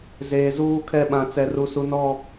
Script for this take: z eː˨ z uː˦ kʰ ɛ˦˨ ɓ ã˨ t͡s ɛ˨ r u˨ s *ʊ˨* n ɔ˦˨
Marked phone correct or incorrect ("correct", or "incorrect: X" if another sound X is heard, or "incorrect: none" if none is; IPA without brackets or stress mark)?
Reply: incorrect: u˨